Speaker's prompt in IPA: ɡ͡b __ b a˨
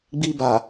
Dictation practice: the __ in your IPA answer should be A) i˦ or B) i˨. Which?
A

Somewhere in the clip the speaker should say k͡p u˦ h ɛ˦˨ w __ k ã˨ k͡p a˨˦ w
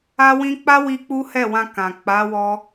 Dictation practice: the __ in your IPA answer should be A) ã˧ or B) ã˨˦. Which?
A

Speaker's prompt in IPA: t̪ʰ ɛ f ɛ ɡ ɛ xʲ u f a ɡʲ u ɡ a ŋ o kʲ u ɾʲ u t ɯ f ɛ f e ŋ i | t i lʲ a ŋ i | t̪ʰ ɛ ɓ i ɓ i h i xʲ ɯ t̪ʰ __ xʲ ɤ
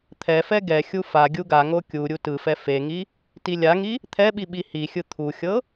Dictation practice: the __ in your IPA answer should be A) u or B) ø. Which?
A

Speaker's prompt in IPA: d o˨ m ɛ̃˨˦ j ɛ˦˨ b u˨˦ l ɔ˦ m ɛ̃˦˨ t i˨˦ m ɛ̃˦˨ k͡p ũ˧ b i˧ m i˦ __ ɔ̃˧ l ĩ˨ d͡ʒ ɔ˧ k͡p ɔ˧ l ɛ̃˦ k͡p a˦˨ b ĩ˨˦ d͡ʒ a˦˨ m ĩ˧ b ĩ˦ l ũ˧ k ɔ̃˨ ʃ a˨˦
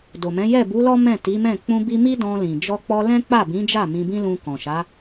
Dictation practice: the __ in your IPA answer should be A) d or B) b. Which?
A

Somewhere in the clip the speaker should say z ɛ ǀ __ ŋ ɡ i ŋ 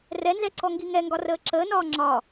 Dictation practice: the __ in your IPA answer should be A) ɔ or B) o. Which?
A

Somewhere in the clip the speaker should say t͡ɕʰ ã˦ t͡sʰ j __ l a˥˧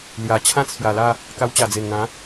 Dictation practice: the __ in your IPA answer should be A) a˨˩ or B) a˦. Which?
A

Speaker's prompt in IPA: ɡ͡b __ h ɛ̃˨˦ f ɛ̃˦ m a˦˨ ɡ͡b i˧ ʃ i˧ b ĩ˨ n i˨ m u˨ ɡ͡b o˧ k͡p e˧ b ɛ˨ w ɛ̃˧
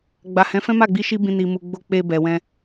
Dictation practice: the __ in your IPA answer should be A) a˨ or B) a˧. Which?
A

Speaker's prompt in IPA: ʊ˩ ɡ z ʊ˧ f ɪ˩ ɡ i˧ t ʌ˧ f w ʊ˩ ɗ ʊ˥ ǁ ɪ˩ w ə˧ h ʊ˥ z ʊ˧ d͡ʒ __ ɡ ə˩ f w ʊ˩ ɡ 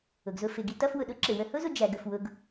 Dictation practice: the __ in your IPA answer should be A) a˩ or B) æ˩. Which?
B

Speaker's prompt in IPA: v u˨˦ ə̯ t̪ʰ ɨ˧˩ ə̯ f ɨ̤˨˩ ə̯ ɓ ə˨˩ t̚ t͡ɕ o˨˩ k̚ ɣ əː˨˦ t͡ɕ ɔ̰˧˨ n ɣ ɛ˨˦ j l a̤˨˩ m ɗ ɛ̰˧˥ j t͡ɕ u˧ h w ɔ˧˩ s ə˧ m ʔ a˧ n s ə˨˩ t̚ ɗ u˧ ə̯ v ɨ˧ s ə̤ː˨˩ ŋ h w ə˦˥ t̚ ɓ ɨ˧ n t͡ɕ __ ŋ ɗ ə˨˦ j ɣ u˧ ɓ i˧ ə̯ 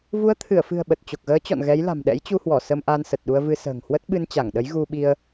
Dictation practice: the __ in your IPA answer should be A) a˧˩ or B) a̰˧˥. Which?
A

